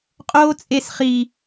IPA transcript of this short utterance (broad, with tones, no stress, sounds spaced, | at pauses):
qʼ oː˦ t͡sʼ e˦ s χ i˦